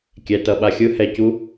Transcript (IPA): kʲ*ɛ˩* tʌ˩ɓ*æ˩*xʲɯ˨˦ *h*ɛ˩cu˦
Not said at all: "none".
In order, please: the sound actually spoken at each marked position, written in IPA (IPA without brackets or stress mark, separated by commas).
ɛ˩, a˩, h